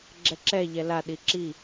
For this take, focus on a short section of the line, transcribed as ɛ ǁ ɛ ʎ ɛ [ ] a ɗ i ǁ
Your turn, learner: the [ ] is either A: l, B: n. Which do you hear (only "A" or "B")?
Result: A